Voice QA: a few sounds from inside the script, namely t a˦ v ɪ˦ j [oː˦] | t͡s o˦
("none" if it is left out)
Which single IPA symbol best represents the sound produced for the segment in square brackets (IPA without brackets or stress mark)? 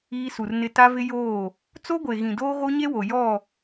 oː˦˨